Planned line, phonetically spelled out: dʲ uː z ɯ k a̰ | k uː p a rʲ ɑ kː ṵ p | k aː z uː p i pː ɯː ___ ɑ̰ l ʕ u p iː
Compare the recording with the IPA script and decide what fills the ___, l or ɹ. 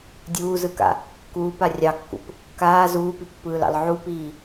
l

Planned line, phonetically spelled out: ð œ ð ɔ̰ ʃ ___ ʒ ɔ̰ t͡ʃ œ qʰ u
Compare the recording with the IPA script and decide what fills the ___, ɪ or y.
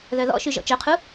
y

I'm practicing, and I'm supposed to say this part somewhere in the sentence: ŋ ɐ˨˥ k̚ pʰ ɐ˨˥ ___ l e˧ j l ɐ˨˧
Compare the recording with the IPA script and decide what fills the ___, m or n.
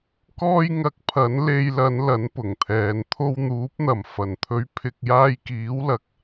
n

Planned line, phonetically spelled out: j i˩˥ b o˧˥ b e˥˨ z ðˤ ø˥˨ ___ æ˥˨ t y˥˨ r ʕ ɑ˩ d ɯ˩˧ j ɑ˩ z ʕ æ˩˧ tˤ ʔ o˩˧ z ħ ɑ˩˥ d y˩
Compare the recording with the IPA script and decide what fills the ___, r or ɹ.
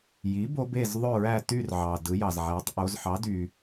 ɹ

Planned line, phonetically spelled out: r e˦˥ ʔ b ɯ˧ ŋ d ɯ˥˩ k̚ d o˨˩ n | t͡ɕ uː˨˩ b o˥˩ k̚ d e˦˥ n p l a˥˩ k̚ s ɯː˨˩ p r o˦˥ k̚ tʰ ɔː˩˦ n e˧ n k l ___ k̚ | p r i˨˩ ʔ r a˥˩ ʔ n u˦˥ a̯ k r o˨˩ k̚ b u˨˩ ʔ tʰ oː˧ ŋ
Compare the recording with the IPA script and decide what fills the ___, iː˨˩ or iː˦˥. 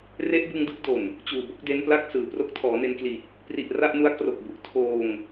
iː˨˩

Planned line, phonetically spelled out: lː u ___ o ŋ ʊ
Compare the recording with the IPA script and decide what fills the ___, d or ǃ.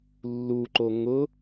ǃ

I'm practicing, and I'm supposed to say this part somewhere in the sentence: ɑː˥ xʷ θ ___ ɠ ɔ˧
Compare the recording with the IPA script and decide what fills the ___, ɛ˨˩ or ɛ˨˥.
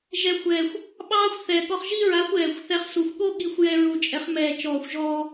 ɛ˨˩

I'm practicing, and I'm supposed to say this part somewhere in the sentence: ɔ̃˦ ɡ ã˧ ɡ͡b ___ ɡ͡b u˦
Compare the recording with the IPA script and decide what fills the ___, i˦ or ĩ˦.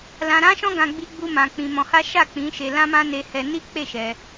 i˦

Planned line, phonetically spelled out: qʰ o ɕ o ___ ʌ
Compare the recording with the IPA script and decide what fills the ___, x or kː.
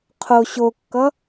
kː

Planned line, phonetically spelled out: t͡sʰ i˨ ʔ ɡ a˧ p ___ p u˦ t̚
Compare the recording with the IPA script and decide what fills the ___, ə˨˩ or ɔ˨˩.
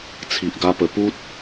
ə˨˩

